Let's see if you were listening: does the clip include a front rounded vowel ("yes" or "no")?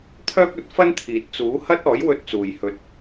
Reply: yes